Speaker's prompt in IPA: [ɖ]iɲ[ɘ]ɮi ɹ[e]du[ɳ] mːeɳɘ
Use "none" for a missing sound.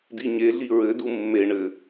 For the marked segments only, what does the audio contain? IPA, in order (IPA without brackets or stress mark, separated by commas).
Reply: d, e, ɘ, none